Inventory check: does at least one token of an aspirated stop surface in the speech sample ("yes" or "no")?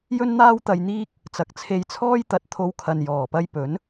yes